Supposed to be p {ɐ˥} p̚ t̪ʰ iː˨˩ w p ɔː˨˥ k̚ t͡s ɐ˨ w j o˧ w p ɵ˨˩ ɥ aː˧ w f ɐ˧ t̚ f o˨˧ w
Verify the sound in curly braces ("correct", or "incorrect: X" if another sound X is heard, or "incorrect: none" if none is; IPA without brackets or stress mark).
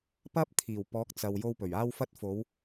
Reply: correct